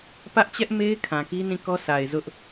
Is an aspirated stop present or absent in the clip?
present